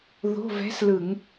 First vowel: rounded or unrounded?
rounded